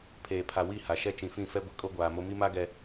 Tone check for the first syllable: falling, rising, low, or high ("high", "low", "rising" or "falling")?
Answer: low